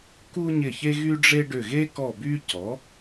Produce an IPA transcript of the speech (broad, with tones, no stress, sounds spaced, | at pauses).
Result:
k u˥ ɲ ɪ˦˨ ç e˥ ɣ y˥ ɖ͡ʐ e˥ ɖ ʏ˦˨ ɣ e˥ k ɔ˦˨ b y˥ c ɔ˩˥